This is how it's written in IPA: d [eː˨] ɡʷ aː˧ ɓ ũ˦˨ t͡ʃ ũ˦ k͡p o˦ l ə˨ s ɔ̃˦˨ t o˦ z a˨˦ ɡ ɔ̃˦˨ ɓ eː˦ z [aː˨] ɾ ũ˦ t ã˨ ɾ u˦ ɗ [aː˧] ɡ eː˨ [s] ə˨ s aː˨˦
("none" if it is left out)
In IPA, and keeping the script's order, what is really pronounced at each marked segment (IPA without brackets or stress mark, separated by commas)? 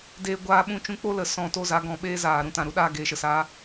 eː˧, aː˨, aː˧, ʃ